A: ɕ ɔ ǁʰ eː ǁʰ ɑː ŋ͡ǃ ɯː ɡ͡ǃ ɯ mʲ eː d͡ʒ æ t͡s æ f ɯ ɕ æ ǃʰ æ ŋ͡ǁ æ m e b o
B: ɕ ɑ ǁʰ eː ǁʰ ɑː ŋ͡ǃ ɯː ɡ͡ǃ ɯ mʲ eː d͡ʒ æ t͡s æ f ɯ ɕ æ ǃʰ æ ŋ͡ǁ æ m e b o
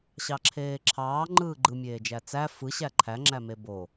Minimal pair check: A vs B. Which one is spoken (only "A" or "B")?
B